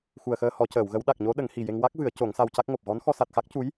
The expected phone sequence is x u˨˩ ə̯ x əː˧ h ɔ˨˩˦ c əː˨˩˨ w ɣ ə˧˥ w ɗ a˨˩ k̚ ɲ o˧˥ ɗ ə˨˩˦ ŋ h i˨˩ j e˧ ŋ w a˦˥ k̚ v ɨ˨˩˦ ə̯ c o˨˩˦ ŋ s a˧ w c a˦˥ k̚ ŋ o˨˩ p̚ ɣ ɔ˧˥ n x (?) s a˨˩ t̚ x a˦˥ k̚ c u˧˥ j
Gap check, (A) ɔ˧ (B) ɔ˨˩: A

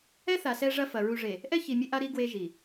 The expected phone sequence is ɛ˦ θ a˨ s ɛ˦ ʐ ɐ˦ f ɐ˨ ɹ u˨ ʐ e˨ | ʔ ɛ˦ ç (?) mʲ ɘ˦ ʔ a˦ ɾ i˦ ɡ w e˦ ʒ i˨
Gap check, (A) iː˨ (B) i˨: B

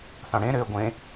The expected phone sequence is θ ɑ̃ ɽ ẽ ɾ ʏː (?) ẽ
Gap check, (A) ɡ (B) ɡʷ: B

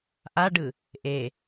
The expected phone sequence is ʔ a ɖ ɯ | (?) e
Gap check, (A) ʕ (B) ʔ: B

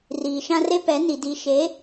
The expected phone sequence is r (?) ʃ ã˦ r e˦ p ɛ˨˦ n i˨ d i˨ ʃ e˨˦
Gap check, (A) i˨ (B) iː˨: B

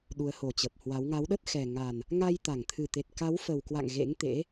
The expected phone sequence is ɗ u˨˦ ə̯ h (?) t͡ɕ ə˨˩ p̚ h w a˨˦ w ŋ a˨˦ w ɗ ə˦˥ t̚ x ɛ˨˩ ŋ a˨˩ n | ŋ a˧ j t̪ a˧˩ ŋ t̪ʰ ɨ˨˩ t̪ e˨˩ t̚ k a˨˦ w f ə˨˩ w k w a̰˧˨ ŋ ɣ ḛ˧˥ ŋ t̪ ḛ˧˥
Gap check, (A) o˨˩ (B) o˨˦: A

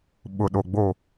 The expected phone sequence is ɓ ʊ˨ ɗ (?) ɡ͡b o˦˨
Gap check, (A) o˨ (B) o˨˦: A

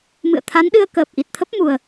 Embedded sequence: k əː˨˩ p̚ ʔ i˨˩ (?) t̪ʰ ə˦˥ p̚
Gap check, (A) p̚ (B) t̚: B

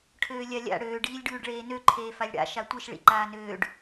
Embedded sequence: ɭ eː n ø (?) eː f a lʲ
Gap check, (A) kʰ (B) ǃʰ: B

